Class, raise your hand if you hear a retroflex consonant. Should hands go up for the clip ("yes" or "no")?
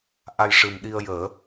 yes